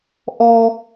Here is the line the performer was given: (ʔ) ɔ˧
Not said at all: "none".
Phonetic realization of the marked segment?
ʔ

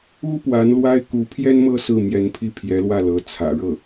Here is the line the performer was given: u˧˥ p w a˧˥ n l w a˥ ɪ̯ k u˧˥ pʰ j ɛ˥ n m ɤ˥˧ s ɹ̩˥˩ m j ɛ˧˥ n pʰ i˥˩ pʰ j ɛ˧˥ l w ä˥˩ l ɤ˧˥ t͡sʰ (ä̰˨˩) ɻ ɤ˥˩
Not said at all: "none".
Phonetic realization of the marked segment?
ä̰˨˩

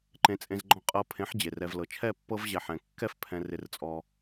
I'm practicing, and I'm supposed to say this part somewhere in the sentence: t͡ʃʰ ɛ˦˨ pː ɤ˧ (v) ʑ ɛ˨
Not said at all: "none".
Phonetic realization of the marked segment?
v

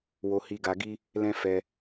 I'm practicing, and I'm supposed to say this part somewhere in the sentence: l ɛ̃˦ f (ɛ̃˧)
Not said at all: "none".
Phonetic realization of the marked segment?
ɛ˧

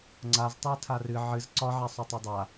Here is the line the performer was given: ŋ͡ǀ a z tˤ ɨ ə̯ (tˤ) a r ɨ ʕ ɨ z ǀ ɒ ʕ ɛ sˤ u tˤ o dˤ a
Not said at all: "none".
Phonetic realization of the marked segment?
tʰ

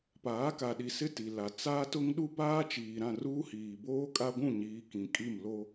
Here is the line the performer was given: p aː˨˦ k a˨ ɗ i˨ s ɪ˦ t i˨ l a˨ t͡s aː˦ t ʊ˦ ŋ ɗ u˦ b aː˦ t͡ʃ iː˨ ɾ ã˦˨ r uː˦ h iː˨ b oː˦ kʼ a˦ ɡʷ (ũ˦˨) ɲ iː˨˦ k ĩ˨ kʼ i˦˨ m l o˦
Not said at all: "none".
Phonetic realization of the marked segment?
ũ˦˨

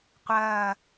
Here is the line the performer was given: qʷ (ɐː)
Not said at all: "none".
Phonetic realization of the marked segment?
ɐː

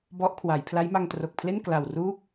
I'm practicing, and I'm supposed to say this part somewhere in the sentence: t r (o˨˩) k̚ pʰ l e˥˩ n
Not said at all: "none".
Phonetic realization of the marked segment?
o˨˩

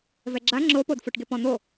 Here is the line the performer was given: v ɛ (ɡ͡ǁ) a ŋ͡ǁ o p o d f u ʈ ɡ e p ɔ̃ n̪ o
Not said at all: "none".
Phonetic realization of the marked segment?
ɡ͡ǁ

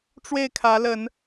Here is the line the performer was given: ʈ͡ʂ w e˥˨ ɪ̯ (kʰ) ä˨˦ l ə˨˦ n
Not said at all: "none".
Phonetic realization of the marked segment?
kʰ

